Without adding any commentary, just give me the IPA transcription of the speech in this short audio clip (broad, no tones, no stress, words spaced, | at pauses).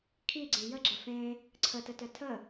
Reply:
kʰiɡ͡ǀẽ jəɡ͡ǁə fẽ | ǀʰətətœ tʰə